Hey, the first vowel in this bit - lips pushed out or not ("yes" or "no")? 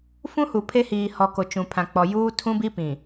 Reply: yes